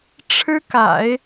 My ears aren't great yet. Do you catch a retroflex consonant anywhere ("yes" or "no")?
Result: yes